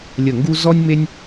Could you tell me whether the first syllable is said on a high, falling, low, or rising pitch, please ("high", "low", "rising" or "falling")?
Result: falling